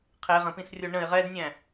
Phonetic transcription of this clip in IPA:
qʰ e ʁ ə̃ p ĩ s rʲ o ɳ ə̃ ɪ̯ ʁ ɛ d nʲ æ̃

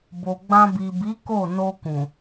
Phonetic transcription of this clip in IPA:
b o˨ ɡ͡b ã˧ b i˨ b i˨˦ k o˦˨ n o˧ k ũ˨

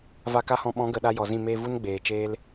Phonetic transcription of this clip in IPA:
v a˧ k a˦ h ɔ̃˧ ɓ ɔ̃˨˦ ɡ ə˨ ɗ a˧ j ɔ˨ z ĩ˦˨ m eː˧ v u˦ n ɡ͡b eː˨ t͡ʃ eː˦ l

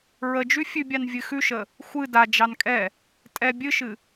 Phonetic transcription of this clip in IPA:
ɹ ə d͡ʒ ʉ fʲ ʉ bʲ ɑ n vʲ ɨ x ʉ ʃ ə | xʷ ɨ d a d͡ʒ ɑ n kʼ ɛ | tʼ ɛ bʲ ɨ ʃ ɨ

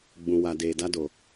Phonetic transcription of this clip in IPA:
ɡ͡b ũ˨ w a˨ d eː˨ d a˧ d o˨

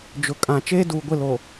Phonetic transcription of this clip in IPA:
d͡ʒ ʊ˨ kʼ ã˨ t͡ʃ eː˦ d uː˨ ɡʷ ɪ˦˨ l o˨

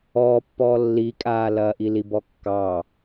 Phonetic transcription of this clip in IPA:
ɔː pː ɔː lː i kʼ aː l ɐː ʔ i l i b ɔ kː ɑ

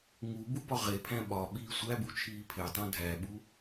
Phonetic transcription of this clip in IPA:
ŋ u b u b ɒ ʁ e pʰ æ̃ ɓ ɒ ɓ iː sʷ æ b u t͡ʃʰ iː pʰ e tˤ õ dʱ æ ɓ u

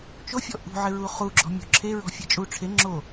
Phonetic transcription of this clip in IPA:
t͡ʃ o fʲ ɔ ʔ ṳ ʕ ɪ ɹ u χ u ɡ͡ǁ ɔ̤ mʲ o̤ ǁʰ e ɹ ɔ̤ fʲ e t͡ʃʼ u ʈ͡ʂʰ e ŋ͡ǁ o

